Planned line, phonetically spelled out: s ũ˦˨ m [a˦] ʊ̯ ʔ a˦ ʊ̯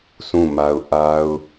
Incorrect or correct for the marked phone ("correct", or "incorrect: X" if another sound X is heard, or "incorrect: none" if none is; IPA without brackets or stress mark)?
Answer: correct